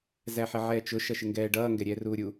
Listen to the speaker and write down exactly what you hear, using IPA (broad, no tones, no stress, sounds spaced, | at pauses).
z æ ħ ɪ ʕ ɛː t͡ʃ ʊ ʃ ʌ ʃ ɪ ŋ ɡ ɛː ɖ ʌː ŋ ɡ ɛ ɾʲ ɛː r uː ɾʲ u